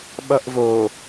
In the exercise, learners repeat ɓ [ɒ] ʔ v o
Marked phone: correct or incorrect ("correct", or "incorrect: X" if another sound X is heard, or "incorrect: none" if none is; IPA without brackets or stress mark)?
incorrect: ʌ